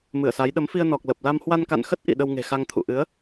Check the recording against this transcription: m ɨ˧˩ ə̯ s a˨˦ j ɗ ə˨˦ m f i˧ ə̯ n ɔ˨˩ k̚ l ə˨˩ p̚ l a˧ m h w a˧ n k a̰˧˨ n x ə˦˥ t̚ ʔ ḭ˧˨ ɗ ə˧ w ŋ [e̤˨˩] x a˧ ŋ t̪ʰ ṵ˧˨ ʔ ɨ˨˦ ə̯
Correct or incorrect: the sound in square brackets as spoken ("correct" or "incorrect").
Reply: correct